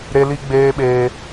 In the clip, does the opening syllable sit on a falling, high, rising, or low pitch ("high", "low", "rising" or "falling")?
high